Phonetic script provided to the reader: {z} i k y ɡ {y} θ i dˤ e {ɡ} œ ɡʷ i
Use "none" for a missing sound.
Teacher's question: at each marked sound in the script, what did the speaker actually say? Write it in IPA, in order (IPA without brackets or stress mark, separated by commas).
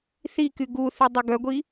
θ, u, ɡ